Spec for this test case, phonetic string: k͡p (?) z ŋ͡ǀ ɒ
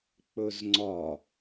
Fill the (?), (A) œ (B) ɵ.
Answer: B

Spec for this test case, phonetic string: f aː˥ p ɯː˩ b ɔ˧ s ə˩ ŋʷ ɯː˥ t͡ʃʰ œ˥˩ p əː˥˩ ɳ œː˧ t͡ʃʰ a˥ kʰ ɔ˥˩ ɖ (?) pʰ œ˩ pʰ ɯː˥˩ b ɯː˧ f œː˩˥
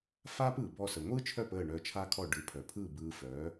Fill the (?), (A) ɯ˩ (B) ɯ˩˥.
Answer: B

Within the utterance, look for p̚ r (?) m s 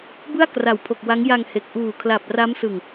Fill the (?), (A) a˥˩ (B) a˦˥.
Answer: B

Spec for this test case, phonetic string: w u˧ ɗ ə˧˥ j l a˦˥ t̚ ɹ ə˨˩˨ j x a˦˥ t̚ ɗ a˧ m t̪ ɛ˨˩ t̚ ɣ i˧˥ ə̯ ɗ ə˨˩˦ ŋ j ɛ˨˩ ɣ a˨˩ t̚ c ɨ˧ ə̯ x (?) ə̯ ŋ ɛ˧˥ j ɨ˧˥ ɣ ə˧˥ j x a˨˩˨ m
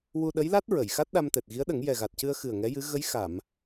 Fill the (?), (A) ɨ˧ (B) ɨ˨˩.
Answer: B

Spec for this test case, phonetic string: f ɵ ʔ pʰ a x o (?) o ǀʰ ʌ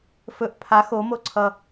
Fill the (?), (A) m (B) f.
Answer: A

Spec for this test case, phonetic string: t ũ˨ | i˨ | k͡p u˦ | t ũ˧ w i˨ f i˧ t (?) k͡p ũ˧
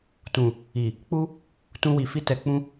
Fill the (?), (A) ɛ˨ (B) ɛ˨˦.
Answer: A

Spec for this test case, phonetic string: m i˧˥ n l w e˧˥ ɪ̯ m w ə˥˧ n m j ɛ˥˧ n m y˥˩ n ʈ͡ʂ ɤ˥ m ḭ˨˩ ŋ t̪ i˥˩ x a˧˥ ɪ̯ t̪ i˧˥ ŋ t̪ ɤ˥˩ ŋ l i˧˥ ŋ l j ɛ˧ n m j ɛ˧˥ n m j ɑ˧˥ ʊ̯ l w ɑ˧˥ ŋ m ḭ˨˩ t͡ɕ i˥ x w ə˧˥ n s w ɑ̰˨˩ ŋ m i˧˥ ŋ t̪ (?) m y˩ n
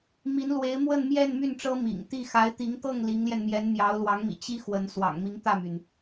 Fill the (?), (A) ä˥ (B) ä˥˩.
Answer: B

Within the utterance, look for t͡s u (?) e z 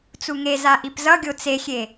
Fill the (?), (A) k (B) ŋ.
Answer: B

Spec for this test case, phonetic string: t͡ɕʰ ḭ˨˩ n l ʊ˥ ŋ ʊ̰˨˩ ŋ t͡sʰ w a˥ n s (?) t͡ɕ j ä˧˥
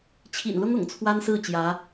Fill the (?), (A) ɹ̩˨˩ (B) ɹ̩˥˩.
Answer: B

